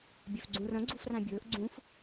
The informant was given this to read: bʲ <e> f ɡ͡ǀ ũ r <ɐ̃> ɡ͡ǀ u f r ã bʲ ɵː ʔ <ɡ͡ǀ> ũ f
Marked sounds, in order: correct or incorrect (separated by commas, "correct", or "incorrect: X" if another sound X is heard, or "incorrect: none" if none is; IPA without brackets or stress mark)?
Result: incorrect: ø, correct, correct